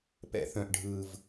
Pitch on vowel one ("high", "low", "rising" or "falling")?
low